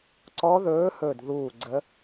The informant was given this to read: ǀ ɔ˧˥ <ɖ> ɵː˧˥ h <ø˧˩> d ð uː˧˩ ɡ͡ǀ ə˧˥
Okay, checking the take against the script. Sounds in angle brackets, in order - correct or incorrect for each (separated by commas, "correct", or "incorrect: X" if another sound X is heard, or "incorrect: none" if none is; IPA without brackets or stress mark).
incorrect: ð, incorrect: ɵ˧˩